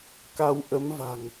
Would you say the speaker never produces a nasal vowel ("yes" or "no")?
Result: yes